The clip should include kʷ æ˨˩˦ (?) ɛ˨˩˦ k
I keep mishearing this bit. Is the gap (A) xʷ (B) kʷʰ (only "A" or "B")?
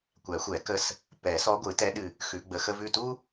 A